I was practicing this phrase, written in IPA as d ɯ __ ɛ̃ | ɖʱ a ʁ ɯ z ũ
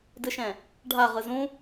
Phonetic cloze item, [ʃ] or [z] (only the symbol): ʃ